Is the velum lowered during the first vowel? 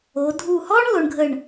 no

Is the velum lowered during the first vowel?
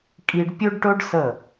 no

